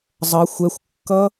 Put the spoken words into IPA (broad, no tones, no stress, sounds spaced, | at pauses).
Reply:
zˤ ʌ xʷ ɛ xʷ kː ʌ